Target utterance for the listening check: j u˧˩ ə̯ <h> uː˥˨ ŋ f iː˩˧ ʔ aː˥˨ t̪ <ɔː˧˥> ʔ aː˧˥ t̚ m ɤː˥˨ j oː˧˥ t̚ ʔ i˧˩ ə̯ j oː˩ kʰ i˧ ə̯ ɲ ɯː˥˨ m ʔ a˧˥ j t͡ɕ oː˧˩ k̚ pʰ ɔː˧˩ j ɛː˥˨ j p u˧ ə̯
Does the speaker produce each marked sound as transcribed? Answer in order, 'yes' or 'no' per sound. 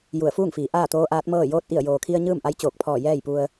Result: no, no

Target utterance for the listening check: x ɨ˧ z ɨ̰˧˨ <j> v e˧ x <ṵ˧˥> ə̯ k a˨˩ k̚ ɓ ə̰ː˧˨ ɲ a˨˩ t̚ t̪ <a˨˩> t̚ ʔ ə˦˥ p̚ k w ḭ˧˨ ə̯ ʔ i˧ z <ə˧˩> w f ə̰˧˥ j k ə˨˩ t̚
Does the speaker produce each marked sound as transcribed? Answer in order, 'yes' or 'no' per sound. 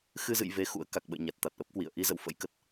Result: yes, yes, yes, no

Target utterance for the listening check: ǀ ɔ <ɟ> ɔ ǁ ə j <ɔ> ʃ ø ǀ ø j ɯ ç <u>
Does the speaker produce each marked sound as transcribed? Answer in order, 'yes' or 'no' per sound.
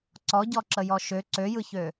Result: yes, yes, no

